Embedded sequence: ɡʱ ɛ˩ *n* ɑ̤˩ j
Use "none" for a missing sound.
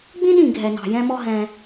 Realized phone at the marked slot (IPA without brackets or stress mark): n